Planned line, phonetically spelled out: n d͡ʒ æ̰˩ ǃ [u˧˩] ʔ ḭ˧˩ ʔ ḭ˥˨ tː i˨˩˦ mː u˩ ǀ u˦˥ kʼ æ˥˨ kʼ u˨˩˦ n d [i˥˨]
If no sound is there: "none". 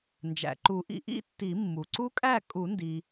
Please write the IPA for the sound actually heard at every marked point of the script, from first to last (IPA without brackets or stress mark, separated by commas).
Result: u˨˩˦, i˩